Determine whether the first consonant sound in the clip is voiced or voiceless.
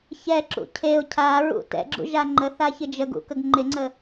voiceless